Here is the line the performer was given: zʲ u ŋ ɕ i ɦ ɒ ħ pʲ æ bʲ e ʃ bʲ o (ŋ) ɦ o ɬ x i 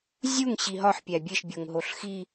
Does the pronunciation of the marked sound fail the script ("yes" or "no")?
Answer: no